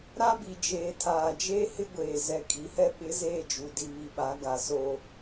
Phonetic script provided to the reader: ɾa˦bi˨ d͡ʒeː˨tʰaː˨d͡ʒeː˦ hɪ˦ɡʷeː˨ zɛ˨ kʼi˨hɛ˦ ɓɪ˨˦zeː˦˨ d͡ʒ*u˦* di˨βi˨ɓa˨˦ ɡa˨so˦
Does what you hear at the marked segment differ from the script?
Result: yes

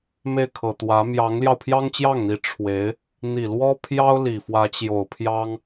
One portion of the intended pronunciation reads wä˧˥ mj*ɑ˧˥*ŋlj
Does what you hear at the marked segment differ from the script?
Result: no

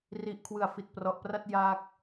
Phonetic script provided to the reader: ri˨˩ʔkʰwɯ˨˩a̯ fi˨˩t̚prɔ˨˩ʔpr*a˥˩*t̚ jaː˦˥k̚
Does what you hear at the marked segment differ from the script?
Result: no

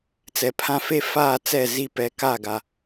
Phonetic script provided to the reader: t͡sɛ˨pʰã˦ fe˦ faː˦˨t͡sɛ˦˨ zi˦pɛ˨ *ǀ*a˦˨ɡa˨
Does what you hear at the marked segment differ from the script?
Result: yes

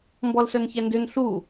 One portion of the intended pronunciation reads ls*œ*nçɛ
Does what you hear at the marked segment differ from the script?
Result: no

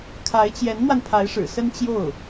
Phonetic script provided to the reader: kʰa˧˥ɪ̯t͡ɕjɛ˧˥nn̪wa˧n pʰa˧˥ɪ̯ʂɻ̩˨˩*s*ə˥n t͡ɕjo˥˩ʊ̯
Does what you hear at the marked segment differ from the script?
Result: no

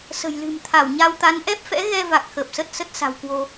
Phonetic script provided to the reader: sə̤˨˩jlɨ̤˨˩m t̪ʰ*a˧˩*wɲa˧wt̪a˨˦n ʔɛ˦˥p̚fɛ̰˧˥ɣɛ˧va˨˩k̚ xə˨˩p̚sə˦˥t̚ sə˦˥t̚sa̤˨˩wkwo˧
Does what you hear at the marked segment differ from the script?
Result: no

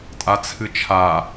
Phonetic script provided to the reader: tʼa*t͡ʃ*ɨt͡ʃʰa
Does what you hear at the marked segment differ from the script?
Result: yes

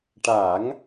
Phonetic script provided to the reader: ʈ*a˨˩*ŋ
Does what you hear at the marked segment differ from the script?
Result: yes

